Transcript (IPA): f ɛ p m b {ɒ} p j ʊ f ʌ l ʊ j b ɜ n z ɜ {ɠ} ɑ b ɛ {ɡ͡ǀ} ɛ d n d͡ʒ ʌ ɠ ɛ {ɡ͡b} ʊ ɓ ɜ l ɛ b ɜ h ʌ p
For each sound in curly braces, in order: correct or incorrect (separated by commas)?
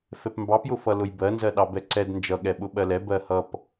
incorrect, incorrect, incorrect, incorrect